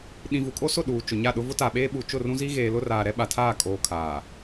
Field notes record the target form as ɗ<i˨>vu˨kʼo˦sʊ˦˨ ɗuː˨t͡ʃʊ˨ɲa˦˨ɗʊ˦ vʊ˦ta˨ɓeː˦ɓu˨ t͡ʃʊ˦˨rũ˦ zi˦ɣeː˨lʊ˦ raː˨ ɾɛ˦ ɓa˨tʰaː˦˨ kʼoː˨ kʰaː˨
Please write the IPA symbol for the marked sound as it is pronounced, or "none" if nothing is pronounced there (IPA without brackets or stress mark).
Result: ĩ˨